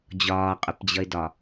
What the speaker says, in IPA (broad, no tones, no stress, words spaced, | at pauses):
d͡ʑɒːqʼʊpd͡ʑʌɪ̯dɒ